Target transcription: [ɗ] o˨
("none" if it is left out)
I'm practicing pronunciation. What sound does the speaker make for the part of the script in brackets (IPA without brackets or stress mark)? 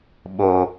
ɓ